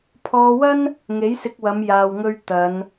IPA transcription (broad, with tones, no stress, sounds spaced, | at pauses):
pʰ ɔː˧ w ɐ˥ n | ŋ e˨˥ j s ɪ˧ k̚ w ɐ˨˧ m j aː˧ w ŋ ɵ˥ ɥ t̪ ɐ˨˧ n